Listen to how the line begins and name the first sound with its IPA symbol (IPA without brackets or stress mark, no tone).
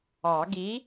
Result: ɑ